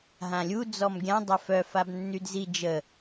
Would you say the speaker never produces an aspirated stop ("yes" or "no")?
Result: yes